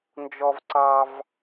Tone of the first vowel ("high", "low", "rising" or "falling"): high